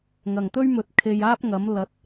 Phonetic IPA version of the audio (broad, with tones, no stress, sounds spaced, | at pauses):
ŋ ɐ˨˩ ŋ t̪ ɵ˥ ɥ m ɵ˨ t̚ kʰ e˨ j aː˥ p̚ ŋ ɐ˨˥ m l ɐ˨˥ t̚